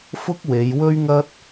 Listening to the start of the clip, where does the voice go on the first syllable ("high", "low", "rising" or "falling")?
high